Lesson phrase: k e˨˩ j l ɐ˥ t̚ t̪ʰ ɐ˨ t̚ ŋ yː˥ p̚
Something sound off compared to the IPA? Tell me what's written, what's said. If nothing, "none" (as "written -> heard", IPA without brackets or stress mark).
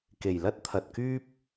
ŋ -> k